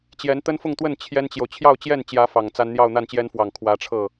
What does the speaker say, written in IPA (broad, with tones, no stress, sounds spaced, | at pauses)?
t͡ɕ j ɛ˧˥ n t̪ ə˥ n f ʊ˥˧ ŋ t̪ w ə˥˩ n t͡ɕʰ j ɛ˥ n t͡ɕ j o˨ ʊ̯ t͡ɕʰ j ɑ˥˧ ʊ̯ t͡ɕ j ɛ˥˩ n t͡ɕ j ä˧˥ f ɑ˨˩ ŋ t͡s a˥ n n̪ j ɑ˥˧ ʊ̯ n̪ a˥˩ n t͡ɕ j ɛ˥ n f w ɑ˨˩ ŋ kʰ w ä˧˥ ʈ͡ʂʰ ɤ˥˩